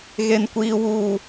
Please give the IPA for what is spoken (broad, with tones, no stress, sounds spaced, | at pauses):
ɣ e˦ n kʷ iː˦ w uː˦